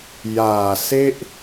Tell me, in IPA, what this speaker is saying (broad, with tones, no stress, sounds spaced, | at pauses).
j aː˨˩ s e˥˩ ʔ